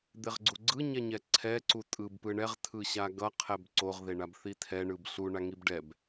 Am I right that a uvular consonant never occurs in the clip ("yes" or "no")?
no